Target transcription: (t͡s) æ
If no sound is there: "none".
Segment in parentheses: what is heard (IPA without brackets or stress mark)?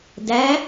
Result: d